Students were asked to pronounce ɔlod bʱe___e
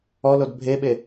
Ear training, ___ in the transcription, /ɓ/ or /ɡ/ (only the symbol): ɓ